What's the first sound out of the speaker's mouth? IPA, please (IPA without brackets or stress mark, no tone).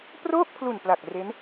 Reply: p